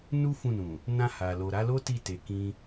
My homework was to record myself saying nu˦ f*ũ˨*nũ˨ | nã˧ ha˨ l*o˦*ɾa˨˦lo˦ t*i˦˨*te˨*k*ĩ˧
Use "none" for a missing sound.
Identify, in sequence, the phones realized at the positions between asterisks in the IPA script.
ũ˦˨, o˨, i˦˨, k

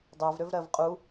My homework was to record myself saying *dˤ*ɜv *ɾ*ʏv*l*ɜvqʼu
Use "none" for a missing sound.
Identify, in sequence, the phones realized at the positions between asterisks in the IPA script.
dˤ, ɾ, ɾ

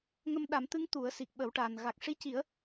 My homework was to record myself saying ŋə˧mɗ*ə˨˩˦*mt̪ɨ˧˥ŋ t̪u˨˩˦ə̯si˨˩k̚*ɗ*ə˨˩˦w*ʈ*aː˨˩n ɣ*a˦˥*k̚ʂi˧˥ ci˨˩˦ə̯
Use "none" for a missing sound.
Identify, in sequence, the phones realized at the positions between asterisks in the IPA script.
a˨˩˦, ɓ, ʈ, a˨˩

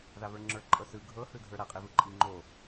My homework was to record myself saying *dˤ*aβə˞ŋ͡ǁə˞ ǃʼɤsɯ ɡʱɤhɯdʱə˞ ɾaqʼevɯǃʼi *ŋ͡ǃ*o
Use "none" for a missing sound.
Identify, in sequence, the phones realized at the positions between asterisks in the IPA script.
ð, ŋ͡ǃ

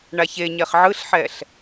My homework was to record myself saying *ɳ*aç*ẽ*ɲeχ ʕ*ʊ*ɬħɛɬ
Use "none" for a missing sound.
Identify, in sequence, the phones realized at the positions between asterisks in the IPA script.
ɳ, e, ɯ

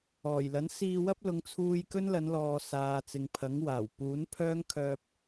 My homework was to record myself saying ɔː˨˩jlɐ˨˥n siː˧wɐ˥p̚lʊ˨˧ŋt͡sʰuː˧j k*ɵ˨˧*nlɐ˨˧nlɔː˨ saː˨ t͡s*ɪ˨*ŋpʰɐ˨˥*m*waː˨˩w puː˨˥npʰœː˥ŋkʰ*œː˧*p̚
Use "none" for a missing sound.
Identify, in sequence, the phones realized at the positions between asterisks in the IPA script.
ɵ˥, ɪ˨, ŋ, œː˧

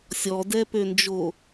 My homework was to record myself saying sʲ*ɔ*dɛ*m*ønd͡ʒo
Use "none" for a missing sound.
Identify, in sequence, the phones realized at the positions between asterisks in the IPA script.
ɔ, p

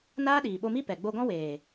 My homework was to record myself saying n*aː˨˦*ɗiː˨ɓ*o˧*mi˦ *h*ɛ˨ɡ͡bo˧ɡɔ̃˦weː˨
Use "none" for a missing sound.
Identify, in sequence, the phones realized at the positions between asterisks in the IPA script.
aː˦, o˧, p

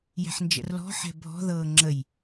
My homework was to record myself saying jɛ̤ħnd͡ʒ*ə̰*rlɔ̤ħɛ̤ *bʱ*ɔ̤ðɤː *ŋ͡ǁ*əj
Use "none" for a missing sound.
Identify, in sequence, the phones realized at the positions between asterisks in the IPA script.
ə̰, bʱ, ŋ͡ǁ

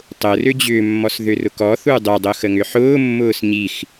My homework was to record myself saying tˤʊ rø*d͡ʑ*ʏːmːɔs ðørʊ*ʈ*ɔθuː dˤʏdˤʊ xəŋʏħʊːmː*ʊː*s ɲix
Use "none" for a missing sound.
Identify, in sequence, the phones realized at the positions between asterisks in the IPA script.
d͡ʑ, k, ʊː

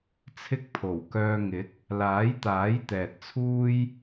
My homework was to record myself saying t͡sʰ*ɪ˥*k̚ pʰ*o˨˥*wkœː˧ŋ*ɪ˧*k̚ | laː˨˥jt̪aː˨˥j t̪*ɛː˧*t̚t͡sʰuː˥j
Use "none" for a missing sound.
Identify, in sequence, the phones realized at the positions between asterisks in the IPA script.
ɪ˥, o˨˩, ɪ˨˥, ɛː˨

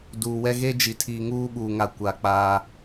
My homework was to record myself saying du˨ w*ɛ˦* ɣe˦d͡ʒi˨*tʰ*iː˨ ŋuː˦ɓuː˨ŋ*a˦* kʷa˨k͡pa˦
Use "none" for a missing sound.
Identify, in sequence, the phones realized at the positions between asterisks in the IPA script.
ɛ˦, tʰ, a˨

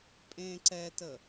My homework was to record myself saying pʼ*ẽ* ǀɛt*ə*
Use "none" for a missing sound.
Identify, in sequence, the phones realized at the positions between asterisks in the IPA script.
ẽ, ə

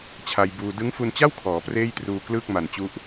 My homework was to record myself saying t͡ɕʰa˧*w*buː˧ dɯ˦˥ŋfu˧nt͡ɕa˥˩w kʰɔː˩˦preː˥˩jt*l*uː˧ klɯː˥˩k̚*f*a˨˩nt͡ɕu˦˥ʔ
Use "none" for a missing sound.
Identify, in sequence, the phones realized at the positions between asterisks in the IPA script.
j, r, m

